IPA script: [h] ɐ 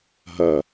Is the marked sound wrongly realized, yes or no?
yes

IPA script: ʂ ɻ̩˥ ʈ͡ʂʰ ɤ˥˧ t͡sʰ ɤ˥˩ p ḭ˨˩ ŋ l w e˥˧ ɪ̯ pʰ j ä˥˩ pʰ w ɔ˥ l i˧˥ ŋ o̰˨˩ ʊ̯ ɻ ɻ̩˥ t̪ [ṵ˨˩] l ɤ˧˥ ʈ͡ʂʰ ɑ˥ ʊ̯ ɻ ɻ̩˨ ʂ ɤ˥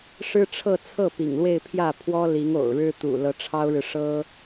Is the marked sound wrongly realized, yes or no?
no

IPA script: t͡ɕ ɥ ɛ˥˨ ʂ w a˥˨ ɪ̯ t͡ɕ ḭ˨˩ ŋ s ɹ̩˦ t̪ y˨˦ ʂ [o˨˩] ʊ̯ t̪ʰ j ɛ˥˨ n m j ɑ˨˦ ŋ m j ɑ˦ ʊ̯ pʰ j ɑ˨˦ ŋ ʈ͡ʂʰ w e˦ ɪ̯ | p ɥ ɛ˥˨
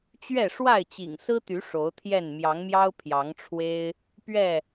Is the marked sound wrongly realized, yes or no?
yes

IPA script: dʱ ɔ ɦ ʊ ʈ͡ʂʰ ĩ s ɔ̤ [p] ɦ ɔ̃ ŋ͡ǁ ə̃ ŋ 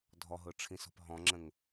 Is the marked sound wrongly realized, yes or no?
no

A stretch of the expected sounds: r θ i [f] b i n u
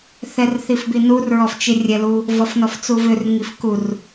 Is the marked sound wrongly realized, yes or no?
no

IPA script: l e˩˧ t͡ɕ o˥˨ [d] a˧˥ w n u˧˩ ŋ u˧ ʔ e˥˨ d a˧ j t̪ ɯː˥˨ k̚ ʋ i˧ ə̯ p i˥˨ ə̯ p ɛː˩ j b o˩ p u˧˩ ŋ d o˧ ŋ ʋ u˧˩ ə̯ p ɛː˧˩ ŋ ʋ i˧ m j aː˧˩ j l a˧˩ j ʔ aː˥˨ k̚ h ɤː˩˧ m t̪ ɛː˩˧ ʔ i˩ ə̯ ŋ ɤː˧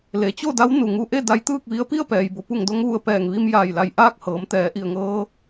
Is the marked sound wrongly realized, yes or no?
no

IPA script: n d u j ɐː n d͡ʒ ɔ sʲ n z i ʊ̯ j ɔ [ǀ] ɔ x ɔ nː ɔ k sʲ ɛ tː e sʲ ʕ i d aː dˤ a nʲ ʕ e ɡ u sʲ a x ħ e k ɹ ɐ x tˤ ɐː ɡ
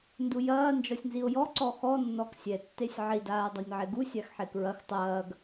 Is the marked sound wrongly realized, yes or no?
no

